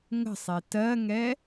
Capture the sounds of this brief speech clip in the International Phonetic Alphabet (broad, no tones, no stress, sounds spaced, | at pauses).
ŋ ə̤ sˤ e t ɜ ŋ ɛ